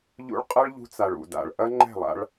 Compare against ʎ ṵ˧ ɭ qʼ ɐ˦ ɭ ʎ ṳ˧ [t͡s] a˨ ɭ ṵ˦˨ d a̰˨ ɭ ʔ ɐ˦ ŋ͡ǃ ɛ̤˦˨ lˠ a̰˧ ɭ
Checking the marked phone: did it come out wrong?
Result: no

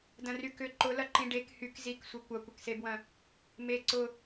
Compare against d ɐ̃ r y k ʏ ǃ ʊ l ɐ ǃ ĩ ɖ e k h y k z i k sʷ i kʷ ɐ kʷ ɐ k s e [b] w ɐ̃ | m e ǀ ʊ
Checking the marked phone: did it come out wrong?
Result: no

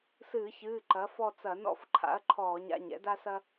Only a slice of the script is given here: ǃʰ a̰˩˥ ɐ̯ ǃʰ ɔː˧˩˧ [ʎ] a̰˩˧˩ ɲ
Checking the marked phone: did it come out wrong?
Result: yes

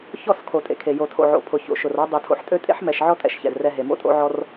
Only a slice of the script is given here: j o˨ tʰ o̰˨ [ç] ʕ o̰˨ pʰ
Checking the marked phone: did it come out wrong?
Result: yes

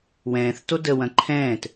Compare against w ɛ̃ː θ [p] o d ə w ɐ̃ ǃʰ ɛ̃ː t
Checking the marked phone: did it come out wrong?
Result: yes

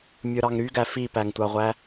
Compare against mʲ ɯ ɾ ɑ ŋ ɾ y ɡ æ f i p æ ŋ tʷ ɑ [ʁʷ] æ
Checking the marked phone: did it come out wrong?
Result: no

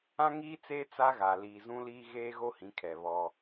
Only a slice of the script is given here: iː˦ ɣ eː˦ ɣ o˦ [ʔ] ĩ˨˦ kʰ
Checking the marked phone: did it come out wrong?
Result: yes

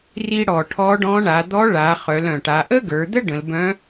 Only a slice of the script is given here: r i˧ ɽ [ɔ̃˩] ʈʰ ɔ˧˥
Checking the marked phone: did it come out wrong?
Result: yes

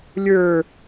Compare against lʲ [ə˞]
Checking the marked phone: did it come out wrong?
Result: no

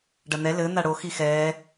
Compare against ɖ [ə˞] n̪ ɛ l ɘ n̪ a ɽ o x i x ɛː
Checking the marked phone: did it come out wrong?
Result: yes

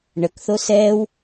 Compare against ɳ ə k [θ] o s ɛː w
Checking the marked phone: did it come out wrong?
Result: no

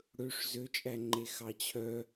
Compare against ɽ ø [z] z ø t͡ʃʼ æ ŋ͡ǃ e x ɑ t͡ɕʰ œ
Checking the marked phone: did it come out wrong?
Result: yes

